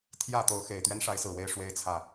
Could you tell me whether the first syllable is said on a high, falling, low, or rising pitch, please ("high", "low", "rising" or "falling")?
falling